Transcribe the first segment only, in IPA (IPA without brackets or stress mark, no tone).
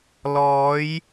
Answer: l